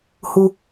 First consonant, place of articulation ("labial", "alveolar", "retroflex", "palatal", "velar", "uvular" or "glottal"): glottal